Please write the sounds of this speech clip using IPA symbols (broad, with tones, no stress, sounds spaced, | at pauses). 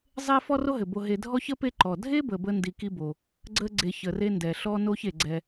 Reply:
zˤ e˦ f ɔ˦ r o˦ ɦ ɘ˩ b o˨ ɦ e˨ dʱ ɔ˦ ç ə˥ p e˦ ǃ ɔ˩ dʱ e˥ b ə˨ b ə˥ n d i˨ k i˦ b o˩ | ɡ͡ǀ ə˥ ɡ͡ǀ e˨ ç ə˩ r e˦ n d ɛ˩ ɬ ɔ˦ n o˦ ç e˩ ɡ͡ǀ ɛ˦